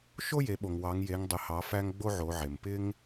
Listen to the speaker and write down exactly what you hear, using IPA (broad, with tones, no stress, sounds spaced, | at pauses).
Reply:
ʃ o˥ j e˩˧ ɓ o˩ ŋ w ɑ˩˧ ŋ j e˩˧ ŋ dˤ ɪ˩˧ h ɑ˩˧ f æ˧ ŋ ɡ͡b o˥ ʕ o˩˧ ʕ e˩ m p ɪ˥ ŋ